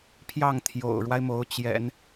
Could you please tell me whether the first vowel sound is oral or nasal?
oral